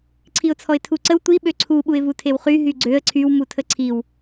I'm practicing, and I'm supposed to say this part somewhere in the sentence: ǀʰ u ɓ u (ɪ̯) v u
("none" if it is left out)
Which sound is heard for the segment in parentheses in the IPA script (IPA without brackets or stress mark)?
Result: ɪ̯